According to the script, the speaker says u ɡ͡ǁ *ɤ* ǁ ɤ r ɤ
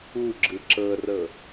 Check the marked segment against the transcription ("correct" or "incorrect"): incorrect